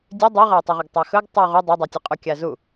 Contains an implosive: no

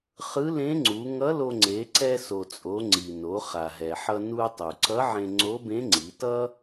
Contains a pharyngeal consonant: yes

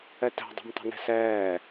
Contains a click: no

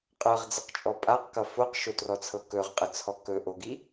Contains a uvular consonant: yes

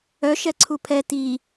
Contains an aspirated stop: yes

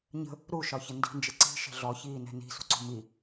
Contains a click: yes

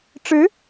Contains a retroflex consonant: yes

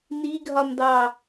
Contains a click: no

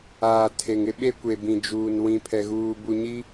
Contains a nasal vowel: yes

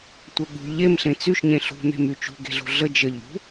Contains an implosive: yes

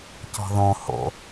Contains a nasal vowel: yes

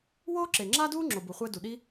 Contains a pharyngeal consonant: no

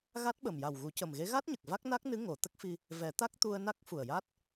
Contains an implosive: yes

